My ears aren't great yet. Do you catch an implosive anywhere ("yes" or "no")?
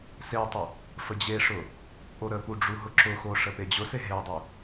no